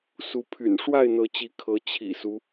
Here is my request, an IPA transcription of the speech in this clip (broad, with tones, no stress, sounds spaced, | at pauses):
s u˨˦ pʰ y̰˨˩ n ʂ w a˥˨ ɪ̯ n̪ ɤ˨˦ t͡ɕ i˨˦ kʰ ɤ˨˦ t͡ɕʰ ḭ˨˩ s u˦